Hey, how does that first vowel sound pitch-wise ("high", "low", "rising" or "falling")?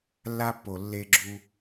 high